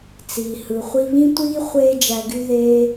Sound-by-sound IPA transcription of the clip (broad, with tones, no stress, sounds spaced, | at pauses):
t͡s iː˨ h ɯ˨ χʷ i˧ β ĩ˦ tʷ iː˦ χʷ eː˦ d͡ʒ æ˧ ɡ y˦ ð eː˦